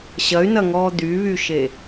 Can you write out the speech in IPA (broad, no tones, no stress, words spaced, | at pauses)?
ɕɐy̯nɐŋɔː d̪yβyʃe